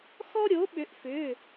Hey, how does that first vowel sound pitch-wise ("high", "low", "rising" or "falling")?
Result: high